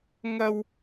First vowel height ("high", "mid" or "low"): low